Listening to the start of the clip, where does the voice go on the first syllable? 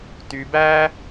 low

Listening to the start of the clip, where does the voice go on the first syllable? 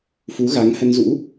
rising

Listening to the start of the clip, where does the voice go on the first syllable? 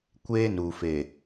high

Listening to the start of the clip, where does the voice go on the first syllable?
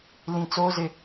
high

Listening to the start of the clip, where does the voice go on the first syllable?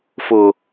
low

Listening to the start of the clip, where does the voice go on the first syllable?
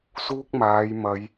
high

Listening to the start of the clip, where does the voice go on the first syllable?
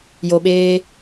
low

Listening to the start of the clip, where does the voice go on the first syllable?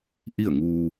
falling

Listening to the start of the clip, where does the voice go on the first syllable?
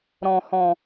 low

